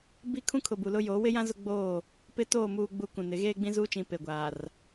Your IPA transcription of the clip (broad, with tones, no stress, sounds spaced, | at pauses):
b i˦ kʰ ũ˦ kʰ ʊ˨ b u˨ l ʊ˦ j oː˨˦ w ɪ˦ j ã˦ z ʊ˦ ɡ͡b oː˦˨ | p ɪ˦ t oː˦˨ m uː˦ ɡ͡b u˦ k ũ˨ n ɪ˨˦ ɣ eː˦ ɡ͡b ĩ˦ z uː˦ t͡ʃ ĩ˨ p e˨ ɡʷ aː˨ r